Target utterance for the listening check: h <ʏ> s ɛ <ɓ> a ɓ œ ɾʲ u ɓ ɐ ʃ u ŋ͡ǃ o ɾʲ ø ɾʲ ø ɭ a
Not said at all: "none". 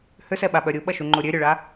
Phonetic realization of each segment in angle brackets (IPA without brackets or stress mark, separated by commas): ʏ, ɓ